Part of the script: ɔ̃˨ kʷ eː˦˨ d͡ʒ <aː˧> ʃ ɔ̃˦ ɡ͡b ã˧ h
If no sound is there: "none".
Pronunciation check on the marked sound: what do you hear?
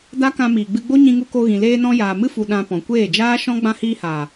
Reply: aː˦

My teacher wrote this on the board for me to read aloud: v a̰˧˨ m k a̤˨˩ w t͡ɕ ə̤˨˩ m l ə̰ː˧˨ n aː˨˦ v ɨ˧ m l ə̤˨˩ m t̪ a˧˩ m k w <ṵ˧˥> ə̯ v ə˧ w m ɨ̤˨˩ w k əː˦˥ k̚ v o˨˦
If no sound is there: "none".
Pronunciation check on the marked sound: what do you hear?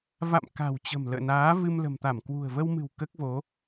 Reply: ṳ˨˩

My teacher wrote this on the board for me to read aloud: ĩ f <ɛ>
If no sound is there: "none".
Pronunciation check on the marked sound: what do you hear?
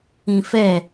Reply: ɛ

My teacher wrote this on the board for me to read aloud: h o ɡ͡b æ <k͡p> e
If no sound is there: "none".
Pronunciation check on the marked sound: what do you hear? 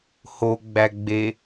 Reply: ɡ͡b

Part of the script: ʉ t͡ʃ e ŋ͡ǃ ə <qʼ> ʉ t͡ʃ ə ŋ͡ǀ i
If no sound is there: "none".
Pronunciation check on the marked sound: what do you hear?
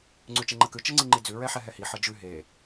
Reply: k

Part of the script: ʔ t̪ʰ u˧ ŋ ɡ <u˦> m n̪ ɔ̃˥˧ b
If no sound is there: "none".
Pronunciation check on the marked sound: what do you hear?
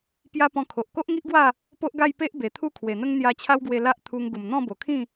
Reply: u˨˩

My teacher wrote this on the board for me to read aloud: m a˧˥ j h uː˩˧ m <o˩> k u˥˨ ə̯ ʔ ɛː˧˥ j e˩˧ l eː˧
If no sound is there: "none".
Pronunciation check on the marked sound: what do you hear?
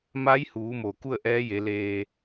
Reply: o˩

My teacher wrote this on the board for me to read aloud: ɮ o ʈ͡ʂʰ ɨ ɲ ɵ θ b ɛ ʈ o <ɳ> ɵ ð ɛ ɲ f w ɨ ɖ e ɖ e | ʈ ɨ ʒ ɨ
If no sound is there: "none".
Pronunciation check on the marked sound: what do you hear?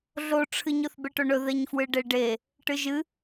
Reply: ɳ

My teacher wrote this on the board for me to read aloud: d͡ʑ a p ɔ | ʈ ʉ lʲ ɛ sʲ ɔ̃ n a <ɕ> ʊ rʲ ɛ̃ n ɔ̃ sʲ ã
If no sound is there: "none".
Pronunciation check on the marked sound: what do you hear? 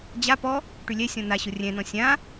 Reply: ɕ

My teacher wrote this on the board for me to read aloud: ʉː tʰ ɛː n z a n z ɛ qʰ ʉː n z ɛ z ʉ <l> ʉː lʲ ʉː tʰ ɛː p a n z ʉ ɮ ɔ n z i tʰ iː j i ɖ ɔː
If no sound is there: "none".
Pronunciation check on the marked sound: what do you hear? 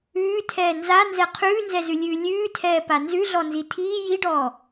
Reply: lʲ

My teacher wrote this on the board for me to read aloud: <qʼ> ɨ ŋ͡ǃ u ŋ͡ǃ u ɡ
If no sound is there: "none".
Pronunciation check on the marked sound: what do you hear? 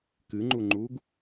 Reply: k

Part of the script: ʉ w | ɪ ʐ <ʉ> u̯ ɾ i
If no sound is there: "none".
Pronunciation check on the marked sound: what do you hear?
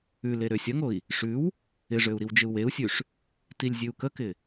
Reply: ø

